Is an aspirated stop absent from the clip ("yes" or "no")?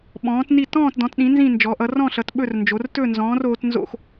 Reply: yes